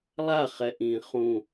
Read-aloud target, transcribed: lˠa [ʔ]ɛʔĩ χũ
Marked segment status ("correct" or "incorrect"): incorrect